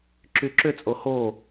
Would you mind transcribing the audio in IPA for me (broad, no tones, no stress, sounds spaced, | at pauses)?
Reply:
ǁ y ǁ ʏ t͡sʼ o h o